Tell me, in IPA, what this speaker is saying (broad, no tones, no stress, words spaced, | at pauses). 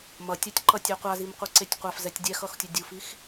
mʌtʲatʲǃʌtʲɛ qʷazimqʷɯǀetʲ qʷafzɛtʲ dʲɛxʌxtʲo dʲufix